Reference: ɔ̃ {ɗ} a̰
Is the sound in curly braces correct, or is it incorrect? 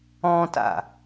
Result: incorrect: t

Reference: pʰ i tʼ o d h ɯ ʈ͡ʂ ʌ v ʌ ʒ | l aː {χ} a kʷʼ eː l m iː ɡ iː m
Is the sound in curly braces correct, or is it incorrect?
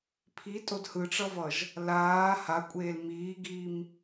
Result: incorrect: h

